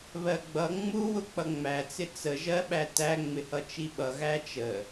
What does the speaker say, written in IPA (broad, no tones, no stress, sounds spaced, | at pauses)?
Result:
β ɜ ɡ͡b ʌ ŋ͡m u w ʊ k͡p ʌ ŋ͡m æ t͡s ɪ t͡s ə ʒ ɜ ɓ æ t æ ŋ͡m ɪ h ʌ t͡ʃ i ɓ ʌ ɣ æ t͡ʃ ə